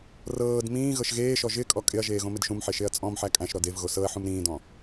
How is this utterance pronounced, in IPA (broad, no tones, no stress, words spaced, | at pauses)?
rɤːd mĩː ɣɤʃɣeːʃɔ ʒɪ kʼɔkʼɪɐ̯ʒeː ɣõmɪdʃũmħe ʃeɐ̯t͡sʼɔ̃mħæ kʼæ̃ʃɾɔd ev ɣosɤɐ̯ħũm ɾĩːdɔ̃